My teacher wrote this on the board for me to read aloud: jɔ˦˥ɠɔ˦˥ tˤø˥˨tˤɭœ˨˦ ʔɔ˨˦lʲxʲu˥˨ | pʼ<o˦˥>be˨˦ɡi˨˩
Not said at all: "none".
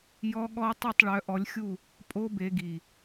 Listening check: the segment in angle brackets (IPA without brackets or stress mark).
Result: o˦˥